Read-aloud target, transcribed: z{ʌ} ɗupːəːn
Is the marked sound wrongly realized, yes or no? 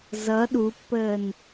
no